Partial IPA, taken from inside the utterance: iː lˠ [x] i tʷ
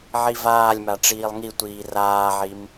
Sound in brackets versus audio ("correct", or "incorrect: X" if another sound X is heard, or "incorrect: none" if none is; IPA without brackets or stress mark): incorrect: ŋ